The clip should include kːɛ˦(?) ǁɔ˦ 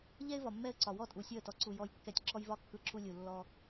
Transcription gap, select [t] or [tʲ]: tʲ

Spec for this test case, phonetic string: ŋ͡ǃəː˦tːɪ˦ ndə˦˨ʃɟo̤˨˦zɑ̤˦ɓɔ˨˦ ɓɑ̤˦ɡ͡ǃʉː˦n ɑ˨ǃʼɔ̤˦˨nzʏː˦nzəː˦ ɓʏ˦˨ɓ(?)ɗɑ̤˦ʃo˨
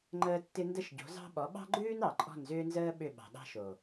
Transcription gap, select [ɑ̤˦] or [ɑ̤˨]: ɑ̤˨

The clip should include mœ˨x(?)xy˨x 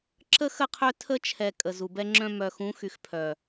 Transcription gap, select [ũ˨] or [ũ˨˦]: ũ˨˦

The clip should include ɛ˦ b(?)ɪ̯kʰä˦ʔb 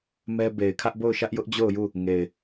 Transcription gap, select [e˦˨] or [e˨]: e˨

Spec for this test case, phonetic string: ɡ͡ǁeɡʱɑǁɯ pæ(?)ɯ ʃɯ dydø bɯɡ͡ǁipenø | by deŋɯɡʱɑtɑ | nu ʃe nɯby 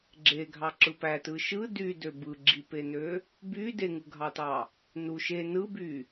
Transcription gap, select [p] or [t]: t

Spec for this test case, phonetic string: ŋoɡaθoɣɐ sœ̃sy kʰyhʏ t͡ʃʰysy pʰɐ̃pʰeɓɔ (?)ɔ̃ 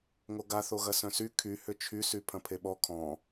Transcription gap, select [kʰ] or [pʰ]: kʰ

